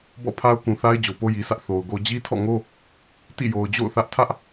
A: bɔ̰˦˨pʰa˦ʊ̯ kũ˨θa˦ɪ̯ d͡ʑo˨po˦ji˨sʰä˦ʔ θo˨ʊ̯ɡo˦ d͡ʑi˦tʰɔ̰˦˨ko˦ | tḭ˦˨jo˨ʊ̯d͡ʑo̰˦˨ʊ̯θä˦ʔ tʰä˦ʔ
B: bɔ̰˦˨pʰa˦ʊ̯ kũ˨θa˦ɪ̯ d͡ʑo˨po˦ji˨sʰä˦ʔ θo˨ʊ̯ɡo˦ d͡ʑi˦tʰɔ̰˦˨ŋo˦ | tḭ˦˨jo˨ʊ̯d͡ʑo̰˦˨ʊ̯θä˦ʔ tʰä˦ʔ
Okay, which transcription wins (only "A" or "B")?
B